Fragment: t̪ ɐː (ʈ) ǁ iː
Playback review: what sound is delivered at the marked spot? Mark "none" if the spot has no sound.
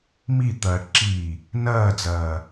ʈ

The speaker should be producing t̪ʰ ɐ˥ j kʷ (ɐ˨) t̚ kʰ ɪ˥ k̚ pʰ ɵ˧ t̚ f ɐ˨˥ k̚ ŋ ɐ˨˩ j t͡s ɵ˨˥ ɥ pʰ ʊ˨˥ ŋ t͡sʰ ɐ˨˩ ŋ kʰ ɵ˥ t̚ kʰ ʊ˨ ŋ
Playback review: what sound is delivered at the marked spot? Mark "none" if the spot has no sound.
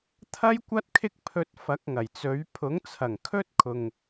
ɐ˥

